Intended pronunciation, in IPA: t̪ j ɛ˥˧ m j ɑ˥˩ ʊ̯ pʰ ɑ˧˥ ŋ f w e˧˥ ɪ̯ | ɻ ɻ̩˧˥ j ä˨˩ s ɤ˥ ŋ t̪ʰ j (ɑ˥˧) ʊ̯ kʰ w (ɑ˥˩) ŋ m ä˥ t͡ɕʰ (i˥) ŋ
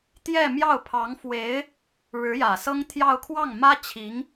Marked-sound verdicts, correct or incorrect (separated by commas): correct, correct, incorrect